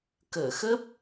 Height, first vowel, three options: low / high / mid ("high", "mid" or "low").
mid